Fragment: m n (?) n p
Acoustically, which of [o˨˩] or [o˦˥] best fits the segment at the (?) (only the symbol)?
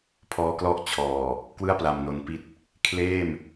o˨˩